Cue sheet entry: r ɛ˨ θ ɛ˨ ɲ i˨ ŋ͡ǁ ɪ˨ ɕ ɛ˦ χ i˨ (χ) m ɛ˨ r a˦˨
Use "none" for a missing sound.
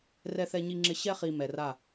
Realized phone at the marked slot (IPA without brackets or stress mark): none